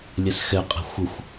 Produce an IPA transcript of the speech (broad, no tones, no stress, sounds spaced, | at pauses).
lʲ ɛ s x ɛ qʼ ɛ̤ xʷ ə xʷ